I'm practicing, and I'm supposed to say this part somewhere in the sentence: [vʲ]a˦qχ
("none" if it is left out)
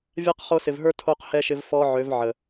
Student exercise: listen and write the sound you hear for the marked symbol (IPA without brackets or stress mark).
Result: vʲ